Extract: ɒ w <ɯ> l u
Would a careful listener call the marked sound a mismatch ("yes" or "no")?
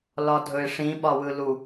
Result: no